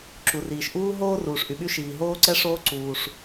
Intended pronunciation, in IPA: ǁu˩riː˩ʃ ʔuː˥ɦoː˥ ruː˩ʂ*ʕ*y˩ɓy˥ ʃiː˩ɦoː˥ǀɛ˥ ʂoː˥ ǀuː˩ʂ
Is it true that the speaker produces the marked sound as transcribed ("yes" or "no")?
no